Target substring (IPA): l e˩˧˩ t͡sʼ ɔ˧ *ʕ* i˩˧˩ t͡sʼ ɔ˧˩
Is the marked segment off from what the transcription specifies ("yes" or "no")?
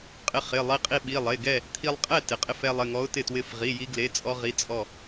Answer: yes